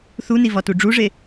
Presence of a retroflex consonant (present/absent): present